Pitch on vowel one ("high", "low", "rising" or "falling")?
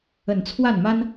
low